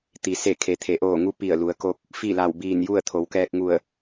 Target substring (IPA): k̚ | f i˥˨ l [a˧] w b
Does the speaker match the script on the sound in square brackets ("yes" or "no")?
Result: no